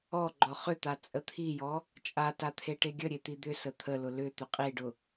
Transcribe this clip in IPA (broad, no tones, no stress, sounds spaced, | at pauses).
ɔ ɡ͡ǃ ɔ χ ʏ t̪ a t͡sʼ ə t̪ʰ i j ɔ | t͡ʃʼ a t a t̪ʰ e ʈ e ɡʲ ə ɾʲ e t̪ i d̪ ʏ s ə t̪ʰ ə l ʊ l ʏ t̪ ʏ qʼ i ɖ ʊ